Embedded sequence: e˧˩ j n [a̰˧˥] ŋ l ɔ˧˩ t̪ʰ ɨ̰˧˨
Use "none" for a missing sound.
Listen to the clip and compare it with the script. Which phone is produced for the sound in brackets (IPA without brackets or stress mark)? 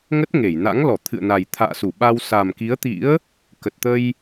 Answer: a̰˧˥